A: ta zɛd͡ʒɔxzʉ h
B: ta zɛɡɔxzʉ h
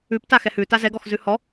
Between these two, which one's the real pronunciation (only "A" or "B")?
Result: B